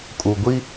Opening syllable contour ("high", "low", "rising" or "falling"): low